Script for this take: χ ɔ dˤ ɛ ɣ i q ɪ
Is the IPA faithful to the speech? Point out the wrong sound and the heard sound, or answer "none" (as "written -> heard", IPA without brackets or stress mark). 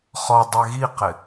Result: none